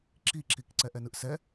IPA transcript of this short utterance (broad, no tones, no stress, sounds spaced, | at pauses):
ǁ i ǁ i k ǀ ɛ ʔ ɛ n ɯ ʔ s ɛ